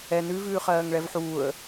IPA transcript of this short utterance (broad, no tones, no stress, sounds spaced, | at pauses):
ɛ n ʉ v ʉː χ ɜː ŋ ɭ ɛ v ħ uː ə̯